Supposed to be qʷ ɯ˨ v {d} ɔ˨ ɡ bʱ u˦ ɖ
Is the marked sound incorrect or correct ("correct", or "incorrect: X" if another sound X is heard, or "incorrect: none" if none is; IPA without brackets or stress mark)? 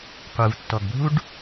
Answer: incorrect: tː